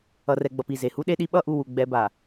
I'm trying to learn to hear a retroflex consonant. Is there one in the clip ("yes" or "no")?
no